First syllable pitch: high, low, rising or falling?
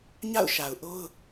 falling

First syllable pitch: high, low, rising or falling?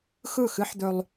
falling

